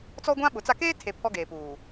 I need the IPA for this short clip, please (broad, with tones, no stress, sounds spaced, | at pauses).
t͡s ɔ˦ ɡʷ ã˦ ɓ ʊ˨˦ t͡s a˦ k eː˦ tʰ e˨ pʰ ɔ˦ ɡ eː˨ p uː˨